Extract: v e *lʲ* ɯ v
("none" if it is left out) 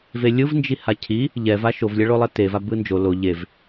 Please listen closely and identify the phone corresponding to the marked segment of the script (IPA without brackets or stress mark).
lʲ